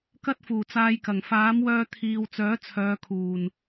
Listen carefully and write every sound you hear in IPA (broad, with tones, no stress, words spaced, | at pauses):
kɐ˥t̚fuː˨˩t͡saː˧jkɐ˨˩ŋ faː˨˥mwœː˧t̪ʰiː˨w t͡sœː˨˥t͡sʰœː˨˧ kʰuː˨˩n